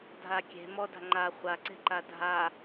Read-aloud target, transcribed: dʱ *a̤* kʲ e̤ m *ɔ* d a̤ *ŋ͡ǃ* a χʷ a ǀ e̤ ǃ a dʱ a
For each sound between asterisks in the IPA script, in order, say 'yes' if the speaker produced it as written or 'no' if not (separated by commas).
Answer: no, yes, yes